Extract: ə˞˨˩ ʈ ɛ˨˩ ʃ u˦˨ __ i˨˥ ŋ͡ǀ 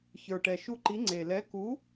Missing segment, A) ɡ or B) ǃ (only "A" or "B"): B